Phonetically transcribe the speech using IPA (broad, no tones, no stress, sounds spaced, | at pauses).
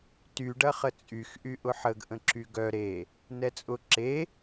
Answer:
t y ɖ ɐ χ ə t͡sʼ y x ʔ y ʔ ʊ ħ ə ɡ ʔ ə̃ ǁ y ɡ œ ɾ e | n ɛ t͡sʼ ʊ ǁ e